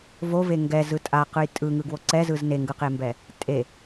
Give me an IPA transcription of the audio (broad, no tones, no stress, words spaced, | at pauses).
vove ŋɡɛzɯ tʼaqɯj tʼɯŋɯ ɡwoǀɛzɯz neŋɡɯqembɛ | tʼe